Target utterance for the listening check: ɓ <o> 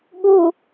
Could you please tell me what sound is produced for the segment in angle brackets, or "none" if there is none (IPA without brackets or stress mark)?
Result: u